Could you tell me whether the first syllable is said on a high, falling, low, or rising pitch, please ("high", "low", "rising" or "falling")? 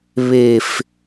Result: high